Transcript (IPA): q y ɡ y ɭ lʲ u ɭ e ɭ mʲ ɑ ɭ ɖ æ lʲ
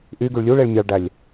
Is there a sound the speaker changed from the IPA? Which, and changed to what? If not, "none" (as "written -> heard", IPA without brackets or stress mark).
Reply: q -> ʔ